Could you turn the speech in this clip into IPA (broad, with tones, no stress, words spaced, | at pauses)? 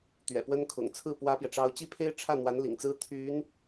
t̪ɥɛ̰˨˩pwə˥n kʰʊ̰˨˩ŋ t͡sʰɹ̩˥˩ pwä˥pjɛ˨ ʈ͡ʂɑ˥ʊ̯ t͡ɕi˥pʰe˥ɪ̯ʈ͡ʂʰä˥˩n̪wa˧˥n lḭ˨˩ŋt͡sɹ̩˥ t̪ʰy˧˥n